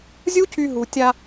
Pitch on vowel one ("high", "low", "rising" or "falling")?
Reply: high